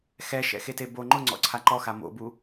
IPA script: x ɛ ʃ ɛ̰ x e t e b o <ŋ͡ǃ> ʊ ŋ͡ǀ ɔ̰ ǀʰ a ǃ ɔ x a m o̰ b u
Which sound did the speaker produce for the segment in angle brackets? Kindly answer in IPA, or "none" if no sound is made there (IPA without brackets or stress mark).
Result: ŋ͡ǃ